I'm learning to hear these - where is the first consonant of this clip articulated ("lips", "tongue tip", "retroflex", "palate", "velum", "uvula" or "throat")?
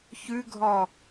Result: palate